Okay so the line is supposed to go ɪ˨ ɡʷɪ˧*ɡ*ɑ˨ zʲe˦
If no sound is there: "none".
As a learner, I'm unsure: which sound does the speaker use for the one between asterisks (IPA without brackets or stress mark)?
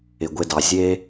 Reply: d